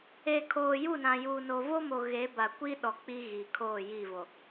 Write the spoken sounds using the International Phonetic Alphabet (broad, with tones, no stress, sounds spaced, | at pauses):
e˨ kʰ oː˨ j u˦˨ n ã˨ j uː˨ n o˨ v o˦ m o˨ ɣ e˨˦ b a˨ kʷ i˦ ɗ ɔ˨ k͡p i˦ ɣ i˨ kʰ oː˦˨ j i˦˨ v o˨